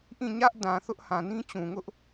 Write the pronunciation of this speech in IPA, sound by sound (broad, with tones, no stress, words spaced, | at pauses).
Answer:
ʔĩ˦˨ɲä˦ʔdã˨ θʊ˦ʔhã˨ nĩ˦t͡ɕũ˨ŋʊ˦ʔ